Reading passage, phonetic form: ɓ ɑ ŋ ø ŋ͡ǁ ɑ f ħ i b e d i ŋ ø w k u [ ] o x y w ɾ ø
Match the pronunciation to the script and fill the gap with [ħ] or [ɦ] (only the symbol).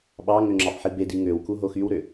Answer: ɦ